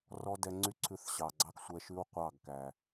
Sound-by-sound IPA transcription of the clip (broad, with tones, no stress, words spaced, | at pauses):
rɔ˦ dɛ˧ŋ͡ǀy˦ǀʰʉ˧θ ɕɑ˨ɡ͡ǀɑ˦ksʷɛ˧ʃʉ˦w qʷɑ˦˨ɡkæ˨